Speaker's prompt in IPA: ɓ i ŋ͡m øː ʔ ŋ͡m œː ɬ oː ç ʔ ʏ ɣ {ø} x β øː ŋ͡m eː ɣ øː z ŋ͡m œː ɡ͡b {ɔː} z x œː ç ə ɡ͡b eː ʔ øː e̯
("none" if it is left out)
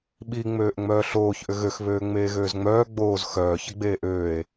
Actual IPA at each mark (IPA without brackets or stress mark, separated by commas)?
ø, oː